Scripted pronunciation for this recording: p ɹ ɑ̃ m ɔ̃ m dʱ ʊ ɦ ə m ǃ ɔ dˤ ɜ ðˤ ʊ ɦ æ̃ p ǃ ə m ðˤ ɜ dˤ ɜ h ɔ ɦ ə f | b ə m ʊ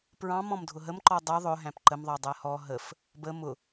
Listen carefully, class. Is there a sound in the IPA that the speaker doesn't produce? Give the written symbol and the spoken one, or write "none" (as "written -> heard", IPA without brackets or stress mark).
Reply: none